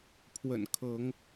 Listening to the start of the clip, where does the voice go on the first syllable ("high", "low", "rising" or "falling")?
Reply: low